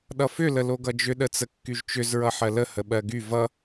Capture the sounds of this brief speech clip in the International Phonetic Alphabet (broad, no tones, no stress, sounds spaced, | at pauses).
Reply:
ɗ ʌ f ʏ l ə l o ɡ ʌ d͡ʒ ʏ ɗ ə t͡s ə kː y ʒ t͡ʃ ʏ z ɹ ʌ ħ ɜ l ə h ə ɓ ɜ ɡ y v ʌ